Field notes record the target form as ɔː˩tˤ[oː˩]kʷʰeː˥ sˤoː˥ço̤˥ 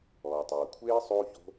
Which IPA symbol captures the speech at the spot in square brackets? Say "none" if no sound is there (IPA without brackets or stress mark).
oː˩